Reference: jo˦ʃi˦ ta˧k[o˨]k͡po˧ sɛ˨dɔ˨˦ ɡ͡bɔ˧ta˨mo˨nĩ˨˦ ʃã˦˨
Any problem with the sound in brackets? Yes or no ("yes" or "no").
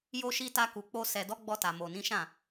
yes